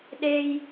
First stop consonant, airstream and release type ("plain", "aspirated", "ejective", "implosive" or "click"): implosive